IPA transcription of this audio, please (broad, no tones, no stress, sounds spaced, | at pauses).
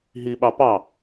ɦ i ɓ ɑ p ɑ